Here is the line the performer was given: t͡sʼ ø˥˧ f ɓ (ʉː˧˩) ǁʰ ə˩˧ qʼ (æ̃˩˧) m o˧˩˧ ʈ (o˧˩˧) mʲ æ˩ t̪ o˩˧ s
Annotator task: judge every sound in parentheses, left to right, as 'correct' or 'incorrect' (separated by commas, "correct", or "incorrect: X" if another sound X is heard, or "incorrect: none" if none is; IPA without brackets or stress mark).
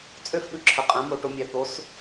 incorrect: ʉ˧˩, correct, incorrect: o˩˧